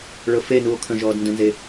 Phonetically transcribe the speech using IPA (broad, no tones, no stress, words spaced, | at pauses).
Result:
ɭɤfenuːo̯ kʰə̃ʒɔːd ndə̃nze